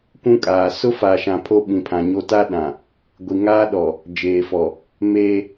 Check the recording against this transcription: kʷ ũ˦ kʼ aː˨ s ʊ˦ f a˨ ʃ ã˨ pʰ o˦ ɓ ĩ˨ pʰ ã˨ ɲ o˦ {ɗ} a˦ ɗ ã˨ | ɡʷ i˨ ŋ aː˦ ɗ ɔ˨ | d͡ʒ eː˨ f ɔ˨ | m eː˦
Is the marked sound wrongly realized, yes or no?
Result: yes